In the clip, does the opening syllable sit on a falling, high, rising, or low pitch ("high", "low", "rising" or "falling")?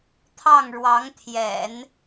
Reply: falling